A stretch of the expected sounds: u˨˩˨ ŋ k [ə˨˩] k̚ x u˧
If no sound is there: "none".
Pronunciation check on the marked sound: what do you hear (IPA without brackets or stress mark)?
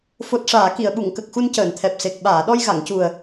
ə˨˩